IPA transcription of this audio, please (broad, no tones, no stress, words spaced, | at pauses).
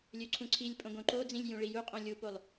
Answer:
lʲøǀʰũǀʰilʲpʼõ ɡõǃod͡zĩlʲ jũɭijuqʼõ lʲupolˠ